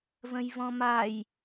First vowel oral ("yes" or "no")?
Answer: no